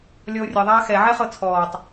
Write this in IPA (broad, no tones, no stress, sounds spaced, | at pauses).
lʲ ɔ o̯ rʲ ʌ ðˤ aː x ɛ ʕ ɛ χ ɤ t͡sʰ ɔː tˤ